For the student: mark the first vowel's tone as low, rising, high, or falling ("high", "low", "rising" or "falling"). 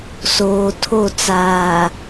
low